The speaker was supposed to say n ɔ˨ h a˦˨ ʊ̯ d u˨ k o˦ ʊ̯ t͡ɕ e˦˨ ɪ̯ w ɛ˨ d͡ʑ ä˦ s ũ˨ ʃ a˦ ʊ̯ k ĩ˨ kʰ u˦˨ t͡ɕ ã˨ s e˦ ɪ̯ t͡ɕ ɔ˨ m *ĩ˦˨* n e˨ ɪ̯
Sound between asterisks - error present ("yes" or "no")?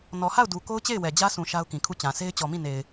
no